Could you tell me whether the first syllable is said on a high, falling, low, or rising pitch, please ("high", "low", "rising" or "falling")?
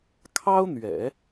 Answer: high